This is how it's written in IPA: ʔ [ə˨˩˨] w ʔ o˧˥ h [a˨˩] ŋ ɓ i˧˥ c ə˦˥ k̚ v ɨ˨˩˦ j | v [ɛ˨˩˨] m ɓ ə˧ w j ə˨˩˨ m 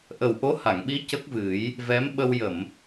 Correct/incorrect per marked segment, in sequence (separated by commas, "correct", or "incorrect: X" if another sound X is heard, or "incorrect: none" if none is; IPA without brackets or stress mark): incorrect: ə˨˩, incorrect: a˨˩˨, incorrect: ɛ˧˥